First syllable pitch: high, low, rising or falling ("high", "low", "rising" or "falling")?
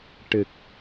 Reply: low